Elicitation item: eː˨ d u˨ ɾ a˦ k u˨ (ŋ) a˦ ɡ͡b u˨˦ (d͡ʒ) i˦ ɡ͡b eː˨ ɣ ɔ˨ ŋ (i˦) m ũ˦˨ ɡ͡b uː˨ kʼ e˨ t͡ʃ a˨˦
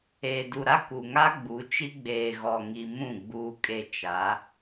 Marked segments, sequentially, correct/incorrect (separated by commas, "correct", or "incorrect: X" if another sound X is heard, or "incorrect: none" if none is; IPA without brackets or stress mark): correct, incorrect: t͡ʃ, incorrect: i˨